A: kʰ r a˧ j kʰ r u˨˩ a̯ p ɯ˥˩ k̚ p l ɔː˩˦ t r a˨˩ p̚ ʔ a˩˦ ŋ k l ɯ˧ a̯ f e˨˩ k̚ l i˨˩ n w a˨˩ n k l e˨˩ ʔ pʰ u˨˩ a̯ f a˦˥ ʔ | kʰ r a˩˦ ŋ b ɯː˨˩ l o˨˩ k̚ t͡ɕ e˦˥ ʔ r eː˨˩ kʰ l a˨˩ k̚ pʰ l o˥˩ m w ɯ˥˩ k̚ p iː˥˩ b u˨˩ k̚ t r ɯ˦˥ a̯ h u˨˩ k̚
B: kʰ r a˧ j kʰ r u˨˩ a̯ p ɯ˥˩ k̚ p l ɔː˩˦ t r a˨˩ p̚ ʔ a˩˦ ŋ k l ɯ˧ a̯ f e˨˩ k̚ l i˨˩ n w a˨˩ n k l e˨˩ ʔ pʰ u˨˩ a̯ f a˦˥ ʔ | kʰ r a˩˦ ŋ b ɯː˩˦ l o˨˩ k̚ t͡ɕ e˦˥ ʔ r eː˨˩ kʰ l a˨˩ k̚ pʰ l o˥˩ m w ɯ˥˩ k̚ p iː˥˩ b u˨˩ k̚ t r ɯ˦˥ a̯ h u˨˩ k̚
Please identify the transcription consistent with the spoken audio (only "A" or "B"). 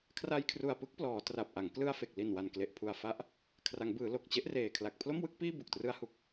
B